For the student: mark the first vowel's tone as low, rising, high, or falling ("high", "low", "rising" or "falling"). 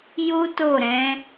high